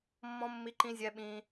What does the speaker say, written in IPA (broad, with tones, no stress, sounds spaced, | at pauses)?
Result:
mː ɔ̃˦ mː i˦ ǃ ĩ˦ zʲ ɛ˦ ɓ ĩ˦